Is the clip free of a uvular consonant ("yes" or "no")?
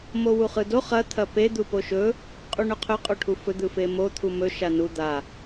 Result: no